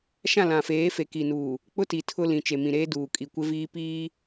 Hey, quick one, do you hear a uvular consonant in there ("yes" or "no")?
no